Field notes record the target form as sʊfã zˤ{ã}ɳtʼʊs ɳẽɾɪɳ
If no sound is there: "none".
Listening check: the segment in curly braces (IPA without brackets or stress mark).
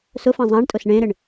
ã